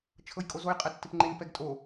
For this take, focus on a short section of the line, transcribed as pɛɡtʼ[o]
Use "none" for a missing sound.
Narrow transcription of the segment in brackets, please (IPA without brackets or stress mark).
o